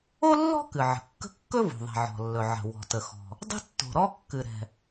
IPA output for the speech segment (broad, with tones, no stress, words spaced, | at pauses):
o˥lːɔ̤˥ kɨ˩ʕə̤˩kːə̤˥ kːɵ˥vo̤˩ðˤɛ̤˩ ʕɔ̤˩lːɵ˩ ʕə̤˩ wɔ̤˩tə˩xɔ̤˩ | dˤə̤˥tːo̤˩ɾɔ˥ kːɨ˩ɾɛ̤˩